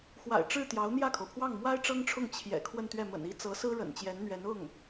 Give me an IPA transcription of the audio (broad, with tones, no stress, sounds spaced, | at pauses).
x w a̰˨˩ ɪ̯ ʈ͡ʂ ɻ̩˥˩ t̪ j ɑ˧˥ ʊ̯ n̪ j ä˥˩ kʰ o˩ ʊ̯ pʰ w ɑ˥˩ ŋ m w a˥ ɪ̯ ʈ͡ʂ ɤ˥ ŋ ʈ͡ʂʰ ʊ˥˩ ŋ t͡ɕʰ j ɛ̰˨˩ kʰ w ə˥˧ n t̪ ɥ ɛ˥˩ m ə̰˨˩ n i˥ t͡s ɤ˧˥ s ɹ̩˥ ɻ ə̰˨˩ n t͡ɕ j ɛ˧˥ n n̪ ɥ ɛ˧˥ n ʊ˥˩ ŋ